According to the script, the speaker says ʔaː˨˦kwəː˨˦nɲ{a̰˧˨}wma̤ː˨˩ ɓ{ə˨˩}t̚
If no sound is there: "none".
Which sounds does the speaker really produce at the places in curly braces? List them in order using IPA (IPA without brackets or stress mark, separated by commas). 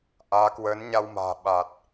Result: a˧, a˨˩